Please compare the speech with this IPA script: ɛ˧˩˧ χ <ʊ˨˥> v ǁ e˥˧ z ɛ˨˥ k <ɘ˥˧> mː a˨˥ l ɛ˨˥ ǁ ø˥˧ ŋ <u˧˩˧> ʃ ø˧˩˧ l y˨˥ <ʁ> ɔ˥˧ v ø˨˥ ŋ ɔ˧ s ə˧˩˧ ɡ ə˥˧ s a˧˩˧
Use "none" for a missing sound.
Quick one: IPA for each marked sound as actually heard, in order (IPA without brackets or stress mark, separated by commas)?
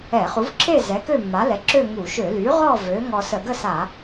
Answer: u˨˥, ø˥˧, u˧˩˧, ʁ